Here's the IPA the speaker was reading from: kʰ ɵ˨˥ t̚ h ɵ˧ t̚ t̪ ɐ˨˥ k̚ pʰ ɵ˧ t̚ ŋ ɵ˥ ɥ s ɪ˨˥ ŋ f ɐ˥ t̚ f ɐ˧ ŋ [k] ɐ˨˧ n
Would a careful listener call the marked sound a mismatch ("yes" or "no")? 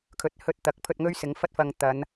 yes